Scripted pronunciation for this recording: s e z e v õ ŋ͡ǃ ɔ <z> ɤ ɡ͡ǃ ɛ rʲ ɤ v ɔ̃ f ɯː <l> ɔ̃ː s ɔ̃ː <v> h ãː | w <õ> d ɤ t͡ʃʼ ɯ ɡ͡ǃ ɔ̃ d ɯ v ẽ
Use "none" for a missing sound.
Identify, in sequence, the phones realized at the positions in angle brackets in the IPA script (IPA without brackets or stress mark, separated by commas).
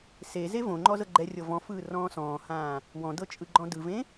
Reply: z, r, none, ɔ̃